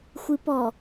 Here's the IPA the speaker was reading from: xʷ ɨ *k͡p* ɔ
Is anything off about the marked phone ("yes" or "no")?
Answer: yes